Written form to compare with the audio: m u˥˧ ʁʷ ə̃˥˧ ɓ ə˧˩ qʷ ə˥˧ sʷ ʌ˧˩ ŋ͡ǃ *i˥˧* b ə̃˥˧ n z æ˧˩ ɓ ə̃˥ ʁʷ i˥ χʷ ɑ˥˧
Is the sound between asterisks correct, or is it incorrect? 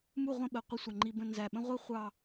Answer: incorrect